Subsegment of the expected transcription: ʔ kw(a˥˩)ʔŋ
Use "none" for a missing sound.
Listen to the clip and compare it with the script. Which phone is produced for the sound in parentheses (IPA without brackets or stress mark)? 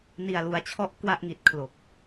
a˥˩